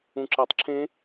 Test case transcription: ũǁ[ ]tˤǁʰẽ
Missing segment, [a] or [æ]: æ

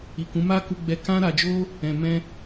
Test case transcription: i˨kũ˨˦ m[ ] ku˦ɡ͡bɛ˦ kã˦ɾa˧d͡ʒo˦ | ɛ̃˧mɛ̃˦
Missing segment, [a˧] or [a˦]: a˦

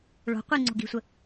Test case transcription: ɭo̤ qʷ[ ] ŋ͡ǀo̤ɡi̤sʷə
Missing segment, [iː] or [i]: i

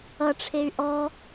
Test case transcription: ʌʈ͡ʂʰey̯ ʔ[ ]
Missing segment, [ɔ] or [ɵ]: ɔ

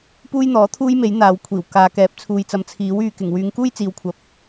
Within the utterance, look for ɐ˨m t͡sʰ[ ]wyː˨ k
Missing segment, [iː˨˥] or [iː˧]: iː˨˥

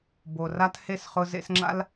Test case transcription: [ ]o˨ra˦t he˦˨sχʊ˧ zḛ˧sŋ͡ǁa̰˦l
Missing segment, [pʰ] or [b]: b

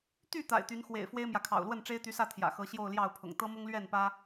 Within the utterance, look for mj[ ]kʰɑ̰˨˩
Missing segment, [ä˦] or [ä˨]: ä˨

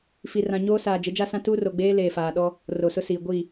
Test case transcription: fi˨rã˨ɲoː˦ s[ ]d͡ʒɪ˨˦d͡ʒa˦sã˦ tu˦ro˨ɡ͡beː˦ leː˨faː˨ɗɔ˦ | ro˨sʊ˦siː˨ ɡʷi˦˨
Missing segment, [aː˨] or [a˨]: aː˨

